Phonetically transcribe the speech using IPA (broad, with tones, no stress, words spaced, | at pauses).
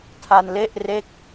tʰa˧nle˥˩ʔ re˥˩k̚